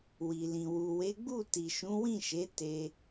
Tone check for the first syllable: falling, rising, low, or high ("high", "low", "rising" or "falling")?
low